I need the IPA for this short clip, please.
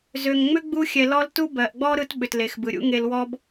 zø˨ŋ ŋ͡mʏ˥ɡ͡bu˦xʲɛ˨lɔ˦l tu˥bɜ˩ʔɡ͡bɔ˥ ɾɯ˦tɓʏ˩tle˩xbɯ˩ ɾʲṵ˦ŋe˨l wɔ˦b

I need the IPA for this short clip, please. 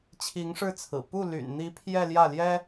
t͡ɕʰi˧˥ŋʂɻ̩˥˩t͡sʰɹ̩˨˩ pu˥˩ ly̰˨˩nn̪i˧˥ pʰjɛ˥˧ljä˥˩ljɛ˥

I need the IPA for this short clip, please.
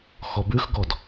xɔbʉxɡɔd

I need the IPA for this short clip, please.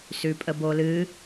sʉpʼəbolɨ

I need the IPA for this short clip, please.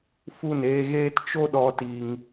fu˦˨neː˧ɣeː˦t t͡ʃo˦ɗɔ˧ ti˧ŋ

